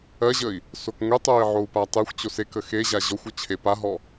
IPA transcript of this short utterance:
ɜʑəi̯ | sokŋʷetˤoi̯ ʕou̯patˤexʷt͡ɕo sekə xeʑa ʑɔxʷɔ t͡ɕʰepaɦɔ

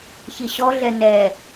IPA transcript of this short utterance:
çiɕɔɮɛ nɛ

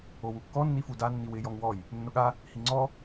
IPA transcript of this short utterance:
owukːɔ nːifuda nːiwɪ jɔŋwɔj | nːʊɠa | hiŋ͡ǀɔ

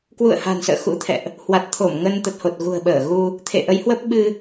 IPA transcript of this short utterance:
kwṵ˧˨ə̯ha̤˨˩nsə̰ː˧˨ xṵ˧˥t̪ʰɛ̰˧˨ʔ | hwa˨˩t̚t̪ʰo˧˩m ŋə˧n t̪ə˨˩t̚ho˨˩t̚ ɣṳ˨˩ə̯ɓəː˧˩ɣu˧ | t̪ʰḛ˧˨ʔə˨˦jhwə˦˥p̚ ɓɨ˧

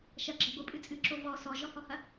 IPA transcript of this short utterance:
ʃɐɡ͡ǁɐ ɡʷɨpʼɨ t͡sʼɨǁo vɔ sɔʒɔhɔhɐ

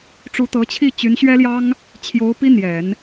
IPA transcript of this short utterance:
ʈ͡ʂu˧˥t̪ɤ˧˥t͡ɕʰi˥˩ t͡ɕy˧˥nɕɥɛ˥ljɑ˥ŋ | t͡ɕʰjo˧˥ʊ̯ pi˥n̪jɛ˨˩˦n

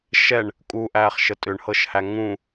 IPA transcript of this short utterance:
ʃɛɳ | kʼuʔæːχ ʃətʼʏɳhɤʃhæ ŋũ

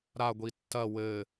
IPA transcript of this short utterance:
ɾaɡʷi tːɐ wɘ

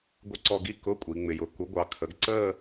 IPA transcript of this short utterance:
ɡʷɪ˥˧ǀɔ˥˧ ɡi˥˧ kʊ˧˥˧ kʷʼi˩˧ŋ͡mɪ˩˧jʊ˩˧ ku˩˥ɡʷɑ˩˧ kʰə˩˥ɡ ǀəː˥˧

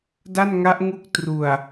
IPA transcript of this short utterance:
da˥˩nŋa˦˥ʔŋu˦˥k̚ tru˨˩a̯

